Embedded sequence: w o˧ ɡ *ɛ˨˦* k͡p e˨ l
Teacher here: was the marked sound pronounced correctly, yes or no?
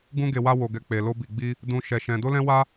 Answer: no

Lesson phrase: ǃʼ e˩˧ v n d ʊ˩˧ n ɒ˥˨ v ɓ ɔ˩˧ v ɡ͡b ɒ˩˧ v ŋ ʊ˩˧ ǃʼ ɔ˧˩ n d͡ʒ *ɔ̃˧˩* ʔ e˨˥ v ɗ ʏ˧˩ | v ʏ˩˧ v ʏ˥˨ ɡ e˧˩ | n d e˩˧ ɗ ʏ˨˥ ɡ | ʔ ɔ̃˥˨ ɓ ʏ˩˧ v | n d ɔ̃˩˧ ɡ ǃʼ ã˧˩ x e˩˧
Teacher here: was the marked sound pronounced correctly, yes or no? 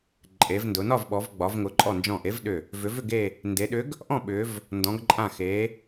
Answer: yes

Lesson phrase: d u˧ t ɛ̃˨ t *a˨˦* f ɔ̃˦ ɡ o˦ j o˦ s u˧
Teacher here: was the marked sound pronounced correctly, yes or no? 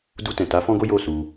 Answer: yes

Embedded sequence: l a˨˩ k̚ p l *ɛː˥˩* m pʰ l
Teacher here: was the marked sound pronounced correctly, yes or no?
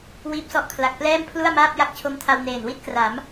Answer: yes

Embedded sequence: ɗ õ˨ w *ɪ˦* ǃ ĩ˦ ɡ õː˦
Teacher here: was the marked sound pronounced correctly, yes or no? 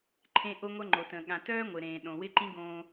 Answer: yes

